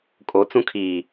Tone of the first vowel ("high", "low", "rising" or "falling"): rising